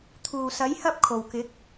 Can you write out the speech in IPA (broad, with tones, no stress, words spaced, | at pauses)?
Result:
t̪ʰuː˨˩sɐ˨˥j hɐ˥p̚kʰo˨˩w kɪ˨˥k̚